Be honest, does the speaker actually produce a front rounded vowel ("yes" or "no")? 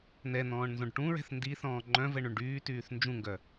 yes